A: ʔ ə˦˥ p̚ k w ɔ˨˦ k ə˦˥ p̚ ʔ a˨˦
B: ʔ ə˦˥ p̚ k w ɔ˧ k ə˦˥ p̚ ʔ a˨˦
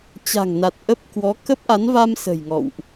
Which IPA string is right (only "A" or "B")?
A